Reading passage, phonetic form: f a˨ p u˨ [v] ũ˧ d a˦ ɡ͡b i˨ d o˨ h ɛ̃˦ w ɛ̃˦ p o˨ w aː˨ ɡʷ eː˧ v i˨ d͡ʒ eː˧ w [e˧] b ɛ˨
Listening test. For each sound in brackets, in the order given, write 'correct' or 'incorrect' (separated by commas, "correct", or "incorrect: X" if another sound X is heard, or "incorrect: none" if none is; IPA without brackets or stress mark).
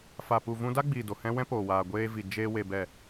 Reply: correct, incorrect: e˨